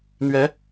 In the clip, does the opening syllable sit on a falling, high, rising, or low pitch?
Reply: rising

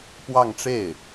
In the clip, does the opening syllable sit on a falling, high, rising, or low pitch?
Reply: falling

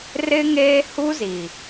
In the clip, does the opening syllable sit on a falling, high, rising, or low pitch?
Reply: high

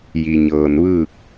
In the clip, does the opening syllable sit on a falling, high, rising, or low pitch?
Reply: low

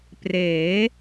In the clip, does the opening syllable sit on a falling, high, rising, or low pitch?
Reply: rising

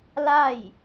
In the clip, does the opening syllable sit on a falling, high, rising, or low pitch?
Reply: falling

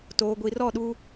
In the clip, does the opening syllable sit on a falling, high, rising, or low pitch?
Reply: low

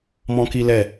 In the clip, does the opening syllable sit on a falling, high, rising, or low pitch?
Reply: high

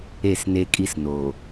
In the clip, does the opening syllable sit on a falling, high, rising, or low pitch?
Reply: falling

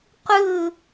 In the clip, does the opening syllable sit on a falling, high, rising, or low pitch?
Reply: falling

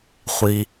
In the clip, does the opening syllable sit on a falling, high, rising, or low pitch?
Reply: low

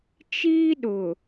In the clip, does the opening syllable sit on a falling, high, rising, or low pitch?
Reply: high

